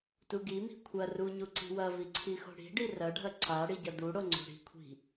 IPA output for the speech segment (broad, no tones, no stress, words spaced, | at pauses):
tuɡimi̤ kʷʰɐ ruɲu ǀi̤wɐvi ǀʰixo̤ɽi̤ɖi rɐɖʱɐ ǀa ɽiɟɐd̪uɽo ŋ͡ǀo̤ɽi̤kʷʰi̤